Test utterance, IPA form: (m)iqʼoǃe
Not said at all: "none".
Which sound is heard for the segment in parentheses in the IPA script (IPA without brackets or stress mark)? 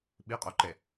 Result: ɓ